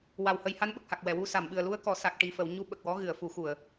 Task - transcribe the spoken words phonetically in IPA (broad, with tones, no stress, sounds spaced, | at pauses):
w a˨˩ w h ə˧ j h a˧˥ n ɓ ə˨˩ k̚ h a˨˩ k̚ w ɛ˨˩˨ w u˧ s a˨˩˨ m ɓ ɨ˨˩ ə̯ l u˧ ə̯ k ɔ˨˩˨ s a˨˩ k̚ ʈ i˨˩ f ə˨˩˨ w ɲ u˧ ɓ ə˨˩ k̚ w ɔ˧˥ ɣ ɨ˨˩˨ ə̯ f u˨˩˦ x u˨˩˨ ə̯